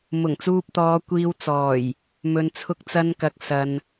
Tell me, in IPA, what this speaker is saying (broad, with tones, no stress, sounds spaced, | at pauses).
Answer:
m ʊ˨˩ ŋ t͡s uː˧ p̚ t̪ ɔː˨˧ kʷ iː˧ w t͡s ɔː˨˩ j | m ɵ˨ n t͡sʰ ʊ˧ k̚ t͡s ɐ˧ n k ɐ˨ k̚ s ɐ˨ n